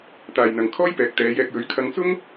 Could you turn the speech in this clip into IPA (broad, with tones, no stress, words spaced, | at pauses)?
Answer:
t̪aː˨jn̪ɐ˨ŋkʰɔː˥jpɛː˨˥k̚ t̪ɛː˨˧jɛː˧k̚jɵ˨˥ɥ kʰɐ˧ŋt͡sʊ˥ŋ